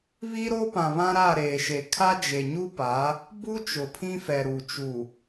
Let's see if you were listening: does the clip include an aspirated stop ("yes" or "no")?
yes